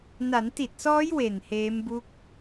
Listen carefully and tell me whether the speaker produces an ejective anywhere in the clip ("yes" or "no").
no